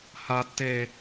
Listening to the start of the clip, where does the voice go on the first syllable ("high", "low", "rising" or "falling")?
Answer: high